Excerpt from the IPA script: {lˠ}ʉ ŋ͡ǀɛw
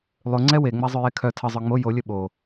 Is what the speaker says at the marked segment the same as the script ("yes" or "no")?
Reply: yes